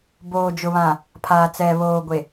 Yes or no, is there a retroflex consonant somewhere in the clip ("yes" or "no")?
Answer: no